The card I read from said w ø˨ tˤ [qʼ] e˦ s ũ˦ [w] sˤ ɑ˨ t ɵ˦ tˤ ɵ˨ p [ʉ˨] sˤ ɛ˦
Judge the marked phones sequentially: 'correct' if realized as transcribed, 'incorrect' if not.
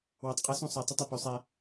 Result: correct, incorrect: none, correct

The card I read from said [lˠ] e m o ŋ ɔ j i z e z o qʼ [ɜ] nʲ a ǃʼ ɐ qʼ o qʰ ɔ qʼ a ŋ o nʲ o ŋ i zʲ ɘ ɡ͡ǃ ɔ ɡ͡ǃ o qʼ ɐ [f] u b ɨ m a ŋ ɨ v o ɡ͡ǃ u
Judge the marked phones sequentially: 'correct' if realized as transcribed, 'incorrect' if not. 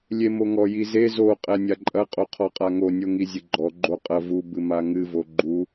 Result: incorrect: lʲ, incorrect: ɛ, incorrect: v

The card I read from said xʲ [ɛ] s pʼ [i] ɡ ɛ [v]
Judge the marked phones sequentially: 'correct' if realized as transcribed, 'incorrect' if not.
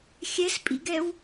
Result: correct, incorrect: ḭ, incorrect: w

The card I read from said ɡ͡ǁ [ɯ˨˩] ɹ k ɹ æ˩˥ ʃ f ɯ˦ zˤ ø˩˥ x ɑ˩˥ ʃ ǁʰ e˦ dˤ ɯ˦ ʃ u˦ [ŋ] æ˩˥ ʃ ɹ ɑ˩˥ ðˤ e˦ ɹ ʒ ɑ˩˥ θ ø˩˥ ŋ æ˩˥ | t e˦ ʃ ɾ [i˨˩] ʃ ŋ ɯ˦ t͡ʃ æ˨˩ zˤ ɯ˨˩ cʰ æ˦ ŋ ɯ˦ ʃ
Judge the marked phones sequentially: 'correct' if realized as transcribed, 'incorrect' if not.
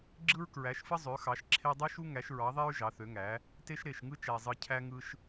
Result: incorrect: ɯ˦, correct, incorrect: e˨˩

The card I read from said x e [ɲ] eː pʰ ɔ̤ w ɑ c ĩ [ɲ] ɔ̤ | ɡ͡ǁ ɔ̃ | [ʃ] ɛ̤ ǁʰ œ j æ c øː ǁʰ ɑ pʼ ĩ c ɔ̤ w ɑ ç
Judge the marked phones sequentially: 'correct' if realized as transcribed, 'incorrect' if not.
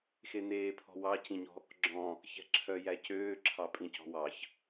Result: incorrect: n, correct, incorrect: ç

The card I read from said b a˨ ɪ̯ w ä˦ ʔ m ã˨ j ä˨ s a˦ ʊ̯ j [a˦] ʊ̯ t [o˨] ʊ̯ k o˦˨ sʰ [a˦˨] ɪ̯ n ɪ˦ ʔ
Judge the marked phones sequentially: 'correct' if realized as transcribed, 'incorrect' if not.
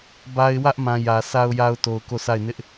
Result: correct, correct, correct

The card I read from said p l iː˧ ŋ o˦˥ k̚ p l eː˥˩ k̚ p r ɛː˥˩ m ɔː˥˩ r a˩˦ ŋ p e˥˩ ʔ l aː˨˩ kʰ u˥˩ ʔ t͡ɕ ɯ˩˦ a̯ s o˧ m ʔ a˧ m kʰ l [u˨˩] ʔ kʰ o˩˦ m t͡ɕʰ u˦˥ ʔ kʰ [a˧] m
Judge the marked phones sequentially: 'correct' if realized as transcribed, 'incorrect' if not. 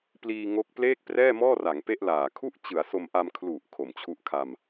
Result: correct, correct

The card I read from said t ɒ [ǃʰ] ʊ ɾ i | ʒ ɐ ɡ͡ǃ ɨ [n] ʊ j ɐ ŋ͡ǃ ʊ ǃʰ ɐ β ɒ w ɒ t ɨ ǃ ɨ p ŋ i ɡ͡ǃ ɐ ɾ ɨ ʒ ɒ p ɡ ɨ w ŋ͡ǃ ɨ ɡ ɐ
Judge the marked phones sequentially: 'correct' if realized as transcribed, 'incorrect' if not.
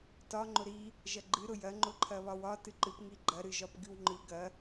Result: incorrect: ŋ͡ǃ, incorrect: ɾ

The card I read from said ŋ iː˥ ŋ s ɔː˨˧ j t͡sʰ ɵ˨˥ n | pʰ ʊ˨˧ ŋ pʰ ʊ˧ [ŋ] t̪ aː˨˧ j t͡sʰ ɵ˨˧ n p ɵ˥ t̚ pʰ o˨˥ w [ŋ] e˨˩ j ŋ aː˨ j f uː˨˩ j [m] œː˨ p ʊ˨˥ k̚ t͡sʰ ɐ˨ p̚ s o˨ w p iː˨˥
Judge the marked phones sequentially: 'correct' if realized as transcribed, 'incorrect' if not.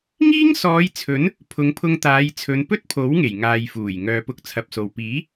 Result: correct, correct, incorrect: ŋ

